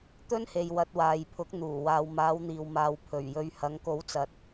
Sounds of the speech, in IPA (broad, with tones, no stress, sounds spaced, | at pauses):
t̪ ɵ˥ n h e˨ j w ɐ˨ t̚ w aː˨ j pʰ ʊ˨˥ k̚ n̪ uː˨˩ w aː˨ w m aː˨˧ w n̪ iː˨ w m aː˨ w pʰ ɵ˨˩ ɥ j ɵ˨ ɥ h ɐ˨˧ ŋ k o˨˥ w t͡s ɐ˨ t̚